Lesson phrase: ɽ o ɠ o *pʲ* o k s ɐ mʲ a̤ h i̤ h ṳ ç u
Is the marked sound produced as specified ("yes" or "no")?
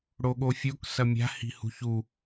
no